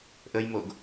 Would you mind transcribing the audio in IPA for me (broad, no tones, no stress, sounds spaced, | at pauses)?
ʔ ə j m o ɡ